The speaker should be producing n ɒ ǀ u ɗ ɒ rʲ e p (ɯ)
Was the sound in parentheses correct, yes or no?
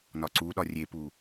no